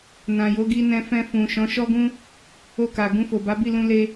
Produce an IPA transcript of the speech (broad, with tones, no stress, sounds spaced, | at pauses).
n ã˨ j o˨˦ ɡ i˧ n ɛ̃˧ f ɛ̃˧ f ũ˨ ʃ ɔ̃˨˦ ʃ ɔ˧ ɡ ũ˧ | o˧ k a˨ ɡ ũ˧ f o˨ b a˨˦ b i˦˨ l ũ˧ l e˧